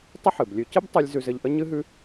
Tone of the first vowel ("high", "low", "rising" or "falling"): high